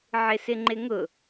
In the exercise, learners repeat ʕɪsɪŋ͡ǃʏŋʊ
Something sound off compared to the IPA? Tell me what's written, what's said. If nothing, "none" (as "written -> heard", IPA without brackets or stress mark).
ʏ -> ɪ